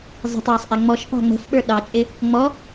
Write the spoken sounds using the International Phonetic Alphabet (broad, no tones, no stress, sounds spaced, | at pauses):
zˤ ə̤ tˤ w ɔ sˤ ʔ ɛ ŋ͡m ɔ ʃ p ɑ̤ ŋ͡m ə̤ f ɓ ə˞ ɗ ɑ t͡ʃʼ ɪ | ŋ͡m ɔ